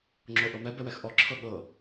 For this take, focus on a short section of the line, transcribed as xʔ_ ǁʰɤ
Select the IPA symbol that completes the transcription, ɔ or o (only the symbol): ɔ